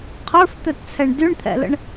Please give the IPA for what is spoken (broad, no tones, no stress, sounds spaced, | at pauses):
qʰ ə˞ f t̪ œ t t͡sʰ ɛ ɳ d y ɳ t̪ʰ ɛ̰ l ə̰ ɳ